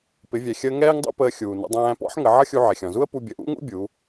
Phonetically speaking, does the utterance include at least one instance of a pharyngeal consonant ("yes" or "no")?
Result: yes